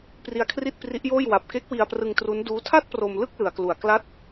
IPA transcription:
p r i˧ a̯ kʰ r i˥˩ t̚ p r i˦˥ ʔ j oː˥˩ j w a˨˩ p̚ k e˦˥ k̚ w i˧ a̯ p r ɯ˧ ŋ t r u˦˥ n d uː˦˥ tʰ a˥˩ t̚ p r o˧ m l ɯ˥˩ k̚ l ɯ˩˦ a̯ k l u˨˩ a̯ k l a˦˥ t̚

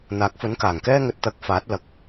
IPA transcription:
n̪ aː˨˥ k̚ f ɵ˨˥ n k aː˨˩ ŋ k ɛː˥ ŋ ɵ˨ t̚ t̪ ɐ˨˥ k̚ f aː˨˥ t̚ l ɐ˨˥ k̚

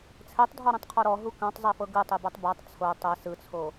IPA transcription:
t͡sʰ ɛ tˤ dʱ ɔ ɾ ɛ̃ tˤ qʰ ɔ ɾ ɔ ɦ u k ã tˤ zˤ e f ɤ ɡ ɯ tˤ e b a tˤ b a tˤ t͡sʰ o tˤ ɛ s ɯ t͡sʰ o

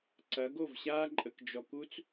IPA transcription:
ǀ ɐ˨˦ ɡ o˦˨ v ɕ aː˦ ǃʼ ə˨ k d͡ʒ ɔ˨ k u˦ t͡s

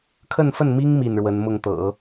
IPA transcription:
kʰ ə˥˧ n f ə˥˩ n m i˥ ŋ m i˥˩ n ɻ w ə˧˥ n m ʊ˥˩ ŋ t̪ ɤ̰˨˩˦

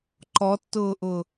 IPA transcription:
ǃ ɔ tː ʊː ʔ ʊ

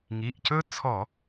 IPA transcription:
ŋ i˩˧˩ ʔ c ɵ˥ t͡sʰ ɔ˧˩˧

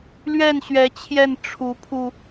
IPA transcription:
l ɥ ɛ˥˩ n ɕ ɥ ɛ˧˥ t͡ɕʰ j ɛ˥˩ n ʈ͡ʂʰ u˧˥ pʰ u˧

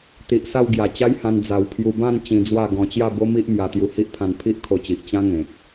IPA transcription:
t̪ i˨ ʔ s a˥˧ w ɡ j a˨˩ t͡ɕ a˦ j h ã˧ n d͡z a˧ w pʰ j u˧ b ã˥˧ n t͡ɕ ĩ˧ d͡z w a˥˧ ɡ ɔ̃˧ t͡ɕ j a˥˧ b o˦ m i˦ ʔ m j a˧ t̪ j u˧ h i˦ ʔ pʰ ã˧ n pʰ i˦ ʔ kʰ o˧ t͡ɕ i˨ ʔ t͡ɕ ã˦ ŋ ẽ˨ k̚

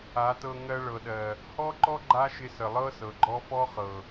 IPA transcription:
a˨˦ t ɤ˧ ŋ ɜ˧ ɭ ɤ˨ ɗ ɜ˨ | h ɔ˦ ǃ ɔ˦ ɡ͡ǃ a˦ ʃ ɪ˧ s ə˨ lˠ ɤ˦ s ɤ˨ ɡ͡ǃ ɔ˦ f ɔ˦ χ ɤ˨

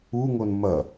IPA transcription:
u ŋ o n m ɐ

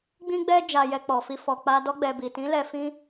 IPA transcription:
ɡ͡b ĩ˦ ɡ͡b ɛ˦ d͡ʒ a˧ j ɛ˧ k͡p ɔ˨ f i˧ f ɔ˨ k͡p a˧ d ɔ˧ ɡ͡b ɛ˨ b i˨ t ĩ˨˦ l ɛ˧ f ĩ˦

